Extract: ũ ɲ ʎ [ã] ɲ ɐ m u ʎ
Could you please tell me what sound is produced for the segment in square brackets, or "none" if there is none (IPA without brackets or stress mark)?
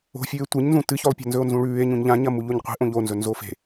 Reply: ã